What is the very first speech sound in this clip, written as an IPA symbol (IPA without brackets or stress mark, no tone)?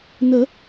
n